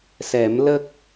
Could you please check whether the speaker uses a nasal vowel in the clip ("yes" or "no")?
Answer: no